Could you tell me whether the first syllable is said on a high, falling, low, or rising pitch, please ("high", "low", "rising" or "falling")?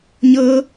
high